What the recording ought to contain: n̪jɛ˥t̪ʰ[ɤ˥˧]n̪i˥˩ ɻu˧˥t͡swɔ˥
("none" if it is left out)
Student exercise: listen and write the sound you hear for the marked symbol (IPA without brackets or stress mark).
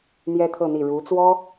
ɤ˥˧